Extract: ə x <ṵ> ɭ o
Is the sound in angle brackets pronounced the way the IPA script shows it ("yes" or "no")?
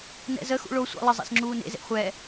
yes